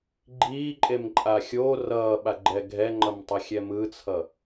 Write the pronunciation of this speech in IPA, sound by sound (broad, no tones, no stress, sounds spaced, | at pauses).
ɡ͡ǃ iː ǃʼ e m ǃʼ a xʲ oː r ʌː ɓ a ɡ͡ǃ ɛ ɡʱ ɛ ŋ͡ǃ ʌ m tˤ ʌ xʲ ɛ m ɯ t͡sʰ ʌ